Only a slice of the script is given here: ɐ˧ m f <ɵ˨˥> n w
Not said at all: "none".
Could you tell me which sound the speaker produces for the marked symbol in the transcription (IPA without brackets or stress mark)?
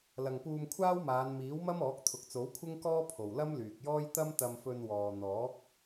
ɵ˧